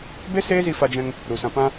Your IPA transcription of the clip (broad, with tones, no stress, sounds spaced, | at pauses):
b e˦ s eː˦ z i˧ f a˧ d͡ʒ ɛ̃˧ ŋ | ɾ u˨ s ã˧ p ã˧